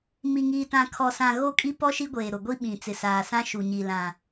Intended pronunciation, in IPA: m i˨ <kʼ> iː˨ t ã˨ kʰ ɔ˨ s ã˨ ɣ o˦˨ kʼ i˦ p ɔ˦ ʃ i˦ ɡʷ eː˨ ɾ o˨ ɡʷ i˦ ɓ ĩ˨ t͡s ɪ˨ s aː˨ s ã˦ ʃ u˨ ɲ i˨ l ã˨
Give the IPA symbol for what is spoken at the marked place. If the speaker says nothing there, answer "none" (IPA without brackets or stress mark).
ŋ